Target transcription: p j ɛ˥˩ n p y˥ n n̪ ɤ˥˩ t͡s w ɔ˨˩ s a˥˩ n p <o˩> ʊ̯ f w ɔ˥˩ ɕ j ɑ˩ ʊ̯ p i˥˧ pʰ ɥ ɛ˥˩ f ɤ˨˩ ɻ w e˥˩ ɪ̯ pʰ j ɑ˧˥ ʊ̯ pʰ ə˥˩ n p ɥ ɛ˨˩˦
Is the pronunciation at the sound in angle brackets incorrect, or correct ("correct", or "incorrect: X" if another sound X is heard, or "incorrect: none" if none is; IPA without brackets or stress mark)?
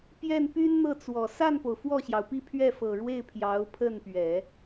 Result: correct